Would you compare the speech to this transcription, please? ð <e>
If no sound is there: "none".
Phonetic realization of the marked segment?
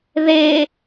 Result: e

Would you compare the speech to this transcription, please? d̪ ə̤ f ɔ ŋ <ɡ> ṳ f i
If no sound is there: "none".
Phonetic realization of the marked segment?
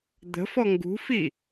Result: ɡ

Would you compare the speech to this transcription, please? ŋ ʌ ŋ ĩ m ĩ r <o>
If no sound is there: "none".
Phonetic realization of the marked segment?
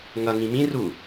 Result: u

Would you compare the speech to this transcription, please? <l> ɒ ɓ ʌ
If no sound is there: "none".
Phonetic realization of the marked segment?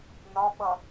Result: n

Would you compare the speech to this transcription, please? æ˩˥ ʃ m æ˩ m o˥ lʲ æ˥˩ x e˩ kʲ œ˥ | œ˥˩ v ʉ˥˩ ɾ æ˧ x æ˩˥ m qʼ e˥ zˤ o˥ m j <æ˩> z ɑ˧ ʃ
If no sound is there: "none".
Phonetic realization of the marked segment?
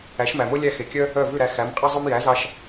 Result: æ˩˥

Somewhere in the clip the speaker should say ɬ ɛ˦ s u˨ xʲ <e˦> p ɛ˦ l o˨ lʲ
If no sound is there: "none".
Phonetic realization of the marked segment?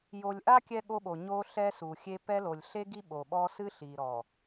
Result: e˦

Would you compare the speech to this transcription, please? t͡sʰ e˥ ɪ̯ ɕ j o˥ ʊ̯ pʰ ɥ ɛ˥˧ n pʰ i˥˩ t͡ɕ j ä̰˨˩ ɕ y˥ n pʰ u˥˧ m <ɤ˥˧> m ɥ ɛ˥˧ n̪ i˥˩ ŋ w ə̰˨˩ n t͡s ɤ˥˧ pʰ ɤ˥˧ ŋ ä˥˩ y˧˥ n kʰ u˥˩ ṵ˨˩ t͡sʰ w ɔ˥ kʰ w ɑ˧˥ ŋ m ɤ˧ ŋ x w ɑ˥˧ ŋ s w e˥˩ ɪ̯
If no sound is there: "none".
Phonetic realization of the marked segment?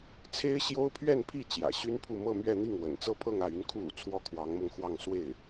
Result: ɤ˥˧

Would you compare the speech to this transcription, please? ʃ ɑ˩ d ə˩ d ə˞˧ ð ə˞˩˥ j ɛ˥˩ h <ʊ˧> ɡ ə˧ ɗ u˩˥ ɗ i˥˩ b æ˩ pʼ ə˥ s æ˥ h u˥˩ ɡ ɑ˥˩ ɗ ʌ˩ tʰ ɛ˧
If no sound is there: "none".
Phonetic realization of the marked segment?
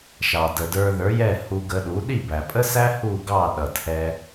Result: u˧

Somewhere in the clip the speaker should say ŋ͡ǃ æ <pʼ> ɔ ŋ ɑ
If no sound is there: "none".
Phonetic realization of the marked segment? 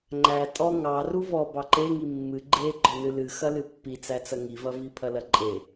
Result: tʼ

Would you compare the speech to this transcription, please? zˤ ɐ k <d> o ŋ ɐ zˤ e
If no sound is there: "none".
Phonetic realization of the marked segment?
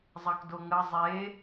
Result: d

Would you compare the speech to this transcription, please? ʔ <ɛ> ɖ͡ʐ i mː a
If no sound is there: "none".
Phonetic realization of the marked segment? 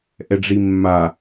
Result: ɛ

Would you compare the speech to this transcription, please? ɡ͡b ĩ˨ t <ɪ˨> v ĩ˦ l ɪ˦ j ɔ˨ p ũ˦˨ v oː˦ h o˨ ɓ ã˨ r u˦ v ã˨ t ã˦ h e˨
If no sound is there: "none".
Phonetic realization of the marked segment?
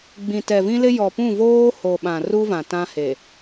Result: ɛ˨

